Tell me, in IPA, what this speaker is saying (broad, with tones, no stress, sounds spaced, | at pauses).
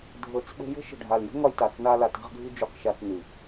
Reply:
dʱ ɤ˧ t͡s ɓ ə̤˦ j ə̤˦ ʃ ə̤˨ ɖʱ a˨ l j ə̤˦ ŋ ɒ˧ j t a˨ t͡s n a˧ l a˨ t a̤˧ ʁ ɡʱ ɨ˧ d͡ʒ u˧ q ʃ a˧ t͡s n ɨ˨